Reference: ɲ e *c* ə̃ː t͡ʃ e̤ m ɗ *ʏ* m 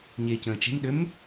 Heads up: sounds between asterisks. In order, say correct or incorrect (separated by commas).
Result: correct, correct